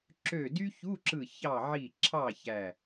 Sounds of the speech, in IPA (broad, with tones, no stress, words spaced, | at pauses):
ǁø˧˩dy˥çu˧˥˧ǁɯ˧˩ çɑ˧˩ʕi˧˩ ǁʰɑ˥˨çæ˧˩